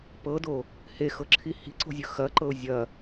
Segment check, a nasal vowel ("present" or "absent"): absent